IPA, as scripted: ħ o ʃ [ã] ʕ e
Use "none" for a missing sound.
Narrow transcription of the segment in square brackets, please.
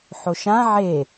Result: ã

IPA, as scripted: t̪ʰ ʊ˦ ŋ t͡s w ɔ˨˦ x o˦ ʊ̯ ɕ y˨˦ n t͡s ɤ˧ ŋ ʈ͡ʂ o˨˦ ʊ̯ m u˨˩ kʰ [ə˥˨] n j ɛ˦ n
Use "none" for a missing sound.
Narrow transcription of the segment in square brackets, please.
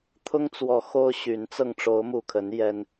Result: ə˨˦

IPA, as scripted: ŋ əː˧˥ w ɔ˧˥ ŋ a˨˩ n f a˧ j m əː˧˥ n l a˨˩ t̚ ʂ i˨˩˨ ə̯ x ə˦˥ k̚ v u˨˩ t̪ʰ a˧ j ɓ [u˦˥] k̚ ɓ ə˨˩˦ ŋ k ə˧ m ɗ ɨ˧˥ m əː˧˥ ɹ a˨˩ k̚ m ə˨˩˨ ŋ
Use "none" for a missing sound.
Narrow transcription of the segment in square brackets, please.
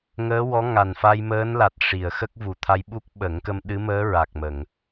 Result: u˦˥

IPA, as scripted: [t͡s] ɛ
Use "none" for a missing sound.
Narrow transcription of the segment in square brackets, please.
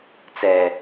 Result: t͡s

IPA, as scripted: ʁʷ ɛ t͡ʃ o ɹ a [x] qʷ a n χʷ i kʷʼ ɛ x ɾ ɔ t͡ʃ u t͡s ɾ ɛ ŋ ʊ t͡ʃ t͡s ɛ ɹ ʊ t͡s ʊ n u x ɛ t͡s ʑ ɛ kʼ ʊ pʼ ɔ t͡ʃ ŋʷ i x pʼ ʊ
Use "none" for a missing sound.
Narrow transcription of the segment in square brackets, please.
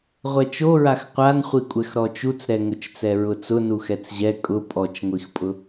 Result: x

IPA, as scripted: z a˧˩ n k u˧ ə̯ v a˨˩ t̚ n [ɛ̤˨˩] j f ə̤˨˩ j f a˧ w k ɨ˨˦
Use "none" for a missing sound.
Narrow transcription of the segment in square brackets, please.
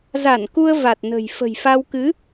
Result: ə̤˨˩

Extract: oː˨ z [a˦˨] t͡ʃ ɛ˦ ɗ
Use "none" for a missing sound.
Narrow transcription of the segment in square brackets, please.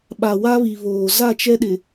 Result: a˦˨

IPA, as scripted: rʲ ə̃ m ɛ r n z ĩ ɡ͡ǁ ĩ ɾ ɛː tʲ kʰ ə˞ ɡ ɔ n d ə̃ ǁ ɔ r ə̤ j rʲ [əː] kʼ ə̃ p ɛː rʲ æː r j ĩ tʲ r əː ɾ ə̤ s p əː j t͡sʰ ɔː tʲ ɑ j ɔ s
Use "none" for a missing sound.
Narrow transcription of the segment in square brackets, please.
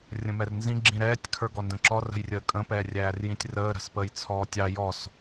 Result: əː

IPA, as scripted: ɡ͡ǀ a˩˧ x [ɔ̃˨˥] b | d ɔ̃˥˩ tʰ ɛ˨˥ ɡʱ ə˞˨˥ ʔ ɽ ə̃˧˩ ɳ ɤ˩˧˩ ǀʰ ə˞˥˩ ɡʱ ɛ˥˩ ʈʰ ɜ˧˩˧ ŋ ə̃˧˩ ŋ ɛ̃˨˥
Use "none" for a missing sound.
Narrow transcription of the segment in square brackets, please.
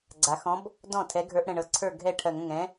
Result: ɔ̃˨˥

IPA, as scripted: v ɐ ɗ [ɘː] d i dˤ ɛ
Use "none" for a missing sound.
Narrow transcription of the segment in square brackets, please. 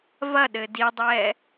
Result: ɘː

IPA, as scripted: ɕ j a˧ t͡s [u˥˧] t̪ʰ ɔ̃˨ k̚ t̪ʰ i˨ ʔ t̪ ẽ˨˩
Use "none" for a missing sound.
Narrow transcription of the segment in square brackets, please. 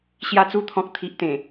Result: u˧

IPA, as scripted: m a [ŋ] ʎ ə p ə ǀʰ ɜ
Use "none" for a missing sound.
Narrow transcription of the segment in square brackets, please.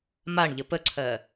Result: ɳ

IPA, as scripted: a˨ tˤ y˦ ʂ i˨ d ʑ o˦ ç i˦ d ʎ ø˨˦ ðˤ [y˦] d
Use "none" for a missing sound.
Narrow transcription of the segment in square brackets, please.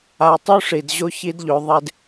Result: e˦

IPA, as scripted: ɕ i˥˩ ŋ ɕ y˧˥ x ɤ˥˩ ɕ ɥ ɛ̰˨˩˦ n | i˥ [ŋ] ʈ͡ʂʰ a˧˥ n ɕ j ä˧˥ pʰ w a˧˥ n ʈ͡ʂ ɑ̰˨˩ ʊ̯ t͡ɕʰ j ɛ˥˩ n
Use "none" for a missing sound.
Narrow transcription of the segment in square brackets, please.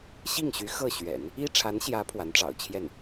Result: none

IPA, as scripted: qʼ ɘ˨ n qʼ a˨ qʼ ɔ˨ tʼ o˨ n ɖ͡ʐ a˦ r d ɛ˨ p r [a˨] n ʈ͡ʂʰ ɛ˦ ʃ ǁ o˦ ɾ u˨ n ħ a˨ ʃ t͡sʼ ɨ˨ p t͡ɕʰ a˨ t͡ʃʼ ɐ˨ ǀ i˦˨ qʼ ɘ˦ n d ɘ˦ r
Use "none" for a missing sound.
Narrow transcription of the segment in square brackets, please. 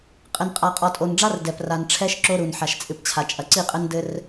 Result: a˨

